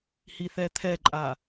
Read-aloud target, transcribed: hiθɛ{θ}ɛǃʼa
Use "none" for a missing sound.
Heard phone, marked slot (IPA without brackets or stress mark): t̪ʰ